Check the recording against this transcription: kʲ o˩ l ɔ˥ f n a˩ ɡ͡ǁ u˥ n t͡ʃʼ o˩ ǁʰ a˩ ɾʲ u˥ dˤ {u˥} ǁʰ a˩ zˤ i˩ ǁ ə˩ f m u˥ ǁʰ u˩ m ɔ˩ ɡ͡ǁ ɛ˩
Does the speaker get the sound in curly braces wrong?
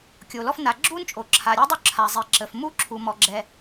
no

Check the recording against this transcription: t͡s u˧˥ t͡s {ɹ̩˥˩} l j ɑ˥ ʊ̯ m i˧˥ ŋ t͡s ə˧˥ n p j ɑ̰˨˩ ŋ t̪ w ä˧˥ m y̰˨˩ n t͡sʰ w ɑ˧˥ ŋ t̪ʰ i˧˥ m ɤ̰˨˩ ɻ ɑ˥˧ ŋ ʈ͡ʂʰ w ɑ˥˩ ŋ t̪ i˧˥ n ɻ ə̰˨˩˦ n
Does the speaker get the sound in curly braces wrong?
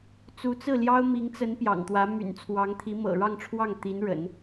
no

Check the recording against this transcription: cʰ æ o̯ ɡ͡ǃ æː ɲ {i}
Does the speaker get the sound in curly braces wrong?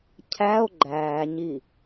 no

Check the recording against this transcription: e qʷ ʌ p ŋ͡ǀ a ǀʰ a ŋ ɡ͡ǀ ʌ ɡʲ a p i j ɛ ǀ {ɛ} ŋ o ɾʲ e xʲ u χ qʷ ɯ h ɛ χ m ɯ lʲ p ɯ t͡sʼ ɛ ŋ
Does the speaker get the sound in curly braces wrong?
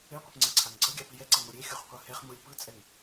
no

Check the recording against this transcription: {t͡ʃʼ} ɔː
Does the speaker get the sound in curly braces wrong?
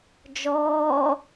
yes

